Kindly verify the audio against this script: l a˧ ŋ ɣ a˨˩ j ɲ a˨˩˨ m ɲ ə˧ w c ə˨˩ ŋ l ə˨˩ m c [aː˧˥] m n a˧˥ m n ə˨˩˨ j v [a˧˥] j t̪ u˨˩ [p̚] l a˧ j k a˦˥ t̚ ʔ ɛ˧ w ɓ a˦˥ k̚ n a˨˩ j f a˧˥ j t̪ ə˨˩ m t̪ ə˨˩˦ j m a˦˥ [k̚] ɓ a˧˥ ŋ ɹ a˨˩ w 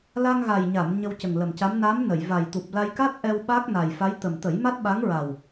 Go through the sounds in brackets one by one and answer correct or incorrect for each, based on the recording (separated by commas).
incorrect, incorrect, correct, incorrect